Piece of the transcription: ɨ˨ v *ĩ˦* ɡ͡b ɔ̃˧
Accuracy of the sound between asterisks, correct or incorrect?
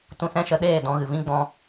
correct